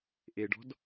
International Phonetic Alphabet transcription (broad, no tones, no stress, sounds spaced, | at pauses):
ʔ e ɖ ɔ̤ d